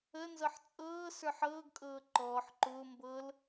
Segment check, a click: present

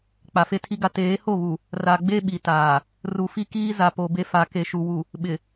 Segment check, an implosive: present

